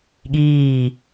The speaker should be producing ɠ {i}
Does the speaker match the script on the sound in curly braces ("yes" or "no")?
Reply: no